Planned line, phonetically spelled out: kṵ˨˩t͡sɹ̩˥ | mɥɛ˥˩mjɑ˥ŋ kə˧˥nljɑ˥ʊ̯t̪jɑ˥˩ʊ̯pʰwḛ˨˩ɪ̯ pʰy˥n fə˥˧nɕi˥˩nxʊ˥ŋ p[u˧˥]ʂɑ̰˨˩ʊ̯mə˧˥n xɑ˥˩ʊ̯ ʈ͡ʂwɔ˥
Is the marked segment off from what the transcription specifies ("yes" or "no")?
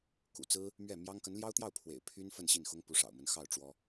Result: no